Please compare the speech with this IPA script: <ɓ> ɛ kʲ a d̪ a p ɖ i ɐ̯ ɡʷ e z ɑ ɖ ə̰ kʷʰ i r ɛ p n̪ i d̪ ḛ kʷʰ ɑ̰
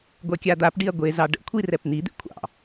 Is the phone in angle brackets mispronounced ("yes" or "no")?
yes